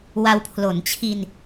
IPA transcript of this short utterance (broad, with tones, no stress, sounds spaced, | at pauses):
w a˧ w pʰ l o˩˦ n t͡ɕʰ i˧ n